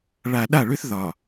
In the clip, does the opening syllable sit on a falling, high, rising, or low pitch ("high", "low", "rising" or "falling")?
low